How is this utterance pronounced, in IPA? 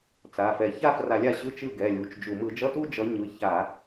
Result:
t͡s a˩˧˩ f ɛ˧˩˧ ç a˥˧ f r a˧˩˧ lʲ a˥˩ ɕ ɯ˧˥˧ t͡ʃ ɯ˥˩ ɡ ɛ˩˧˩ lʲ u˩˧˩ t͡ʃ d͡ʒ u˧˩˧ m ɯ˧˩˧ d͡ʒ ʌ˧˥˧ t u˥˧ d͡ʒ ʌ˨˦ ɲ ɯ˩˧˩ ç a˧˩˧

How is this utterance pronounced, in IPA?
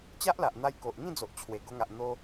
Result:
t͡ɕ a˦ ʔ l a˨ ʔ n̪ a˧ j k o˨ ʔ ŋ ĩ˥˧ d͡z o˨ ʔ t͡ɕʰ w e˨˩ ɡ o˧ ŋ a˨ ʔ n̪ o˧

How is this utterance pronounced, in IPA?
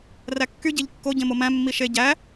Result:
r æ kː y ɟ e ʎ kː o ɟ ẽ m o m æ̃ mː i ʃ e ɟ æ

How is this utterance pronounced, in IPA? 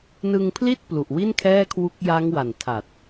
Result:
n ɯ˧ ŋ pʰ l i˥˩ t̚ p l u˨˩ ʔ w i˥˩ n kʰ ɛː˥˩ kʰ w u˦˥ k̚ j a˦˥ ŋ w a˨˩ n tʰ a˨˩ t̚

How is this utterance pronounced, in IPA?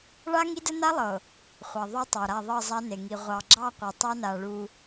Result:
ɭ a˦ ŋ i˦ d ə˦ n a˦ lˠ ɤ˨ | χʷ ɑ˨ ðˤ ø˦ tˤ ɑ˨ ɾ a˦˨ ðˤ ɤ˦˨ zˤ a˦ n e˨ ŋ i˨ ʁʷ ɑ˨ ɡ͡ǁ ɑ˦˨ qʷ i˨ tˤ ɑ˦ n a˨ ɭ u˦

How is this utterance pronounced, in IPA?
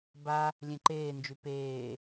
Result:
b a | lʲ ẽ ǃ eː n d͡ʒ y p eː

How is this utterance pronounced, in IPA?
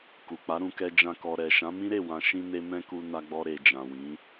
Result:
k u˨ k͡p a˨˦ ɾ ũ˧ k ɛ˧ d͡ʒ ã˦ k ɔ˧ ɾ ɛ˨ ʃ ã˨˦ m ĩ˦ ɾ e˦˨ w ã˧ ʃ ĩ˦ n e˦ m ɛ̃˦ k u˧ n a˧ ɡ͡b ɔ˧ ɾ e˨ d͡ʒ ã˨ w ĩ˨˦

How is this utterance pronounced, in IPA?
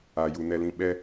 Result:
a˨ j u˨ n ɛ˨ l ĩ˨ ɓ ɛ˦

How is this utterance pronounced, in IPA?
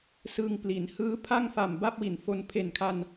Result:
s ɯ˧ ŋ p l i˩˦ n h ɯː˦˥ pʰ a˥˩ ŋ f a˨˩ m b a˥˩ p̚ w i˨˩ n f o˧ n pʰ e˨˩ n kʰ a˧ n

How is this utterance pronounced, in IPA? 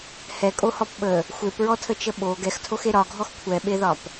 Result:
h ɛ kʼ o h ɔ p ɓ ə | xʷ e p ɹ ɔ tʰ ə t͡ʃ ə ɓ o ɡ ɛ x tʰ o x e ɾ ɒ ɡʱ ɔ x kʷʰ ɛ ɓ e ð ɒ p

